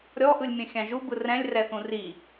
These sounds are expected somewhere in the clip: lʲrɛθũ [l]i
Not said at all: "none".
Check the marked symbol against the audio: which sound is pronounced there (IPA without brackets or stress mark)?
r